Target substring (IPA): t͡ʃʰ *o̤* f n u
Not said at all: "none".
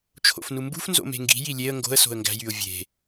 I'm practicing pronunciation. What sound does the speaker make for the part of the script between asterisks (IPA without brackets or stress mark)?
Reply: o̰